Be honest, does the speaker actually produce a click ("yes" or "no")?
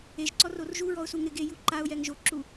yes